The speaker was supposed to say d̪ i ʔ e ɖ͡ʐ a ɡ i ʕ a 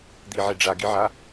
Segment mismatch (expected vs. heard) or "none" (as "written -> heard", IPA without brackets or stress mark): ʔ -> ʕ